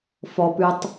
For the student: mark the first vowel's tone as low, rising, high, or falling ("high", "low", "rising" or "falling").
low